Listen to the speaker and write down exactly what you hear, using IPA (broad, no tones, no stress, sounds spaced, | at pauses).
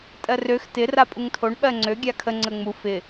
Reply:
tʼ ɜ r ø x t ɪ r a pʼ u ŋ tʰ o ɳ ɓ ɜ ŋ͡ǀ ø ɡʲ a kʰ ə ŋ͡ǀ ə ŋ͡m u f ɪ